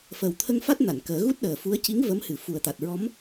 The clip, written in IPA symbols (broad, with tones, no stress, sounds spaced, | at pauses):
f əː˨˩ w t̪ʰ ə˧ ŋ f a˦˥ t̚ n a˨˩˨ n k əː˨˩˦ ɣ u˦˥ t̚ ɗ əː˨˩ f u˧˥ ə̯ c i˧˥ ŋ v ə˧˥ m h ɨ˨˩ f u˨˩ ə̯ t̪ a˨˩ t̚ ɹ ɔ˧˥ m